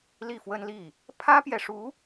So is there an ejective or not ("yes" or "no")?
no